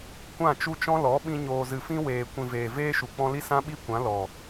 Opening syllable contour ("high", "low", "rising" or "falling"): falling